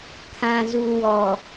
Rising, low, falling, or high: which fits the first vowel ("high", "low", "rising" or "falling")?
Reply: low